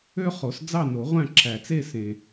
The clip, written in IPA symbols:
ø˥ χ o˨˩˦ s d͡z ɑ˥˧ n o˨˩˦ ʁʷ æ̃˥˧ ǁʰ æ˨ t͡s e˥˧ s ẽ˨

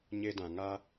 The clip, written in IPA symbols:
ɲ e˦ d ã˧ ŋ a˦

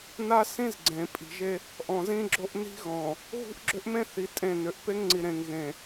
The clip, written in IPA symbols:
n a˦ s ĩ˦ z ɡ͡ǀ ẽ˨ pʼ i̤˨ ʒ e˦ | ʔ ɔ̃˨ z ĩ˦ ɡ͡ǁ o˦ ʔ n i̤˦ ɣ ɔ̃˨ | ɣ ṳ˦ ʔ ɡ͡ǁ ʏ˦ ʔ m ẽ˦ θ i˨ tʼ ẽ˦˨ n ʏ˨ ʔ p e˦ ŋ ŋ͡ǀ i˨ ɾ ẽ˨ ŋ ɣ ẽ˨

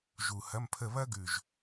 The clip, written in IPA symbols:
ʒ u˨˩ h ɐ˧˥˧ m pʰ ə˥˧ β ɐ˥ ɡ ʉ˨˩ ʒ

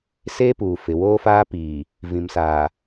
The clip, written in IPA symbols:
s eː˦ p uː˨ f ɪ˨ w oː˦ f aː˦ p iː˨ | v ĩ˨ m s aː˨

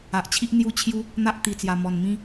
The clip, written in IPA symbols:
a˨ ʔ t͡ɕʰ i˦ ʔ n̪ j u˦ t͡ɕʰ j u˦ | n̪ a˦ ʔ t̪ i˨˩ t͡s j a˨˩ m ɔ˨˩ n m ĩ˦

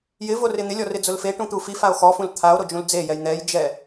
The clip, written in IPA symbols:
j ɪ v o r ɪ n̪ ɪ lʲ ɔ r ɪ d͡z ʊ l f e ʈ ũ t̪ u f i f a o̯ x ɔ f ũ l t̪ʰ a o̯ ɾ o d͡ʒ ũ l d͡z e j ɛ j n̪ ɛ j d͡ʒ ɛ

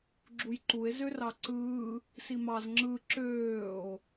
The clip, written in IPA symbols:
ɡ͡ǁ u j ǃ u e̯ z ø r ɑ ǀ ɯː | s i m ɑ z ŋ͡ǁ ɯ ǁ øː o̯

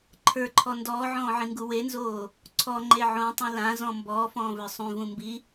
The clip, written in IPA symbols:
ǃʰ ə˞ ǃʰ ɔ n d ɔː ʕ ɔ̃ː ʕ ĩ ŋ ɡ u w e n z oː | ǀʰ ɔ ŋ͡ǃ e ʕ õ tˤ ũ l ã z ɔ̃ m b ɔː f ɔ̃ː v ə˞ sˤ ũ v ũ m b i

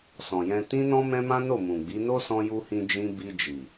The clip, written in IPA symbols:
s ɔ̃˨ j ɛ̃˧ t ĩ˦ n ɔ̃˦ m ɛ̃˦ m ã˦ n o˦˨ m ũ˨ ɡ͡b i˨˦ n o˦ s ɔ̃˧ j u˧ h ĩ˧ d͡ʒ ĩ˧ b i˧ d͡ʒ i˨

